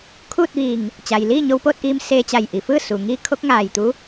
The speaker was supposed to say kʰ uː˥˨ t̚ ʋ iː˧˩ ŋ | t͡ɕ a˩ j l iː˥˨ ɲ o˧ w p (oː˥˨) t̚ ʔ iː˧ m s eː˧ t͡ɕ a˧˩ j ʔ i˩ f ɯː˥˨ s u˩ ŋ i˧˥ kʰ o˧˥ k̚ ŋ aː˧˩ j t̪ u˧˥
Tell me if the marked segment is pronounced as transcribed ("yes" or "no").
yes